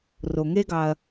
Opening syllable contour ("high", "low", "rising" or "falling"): low